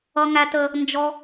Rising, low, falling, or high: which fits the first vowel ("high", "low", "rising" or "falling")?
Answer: high